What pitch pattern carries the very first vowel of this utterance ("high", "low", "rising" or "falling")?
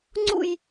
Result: falling